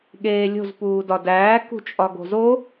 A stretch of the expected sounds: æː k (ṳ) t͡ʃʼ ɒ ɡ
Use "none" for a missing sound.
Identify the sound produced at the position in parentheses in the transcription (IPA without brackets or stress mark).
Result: ṳ